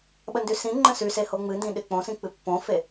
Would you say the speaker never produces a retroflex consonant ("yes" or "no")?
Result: yes